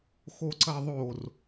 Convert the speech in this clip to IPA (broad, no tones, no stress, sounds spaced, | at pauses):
x o ǀ ɐ ðˤ o r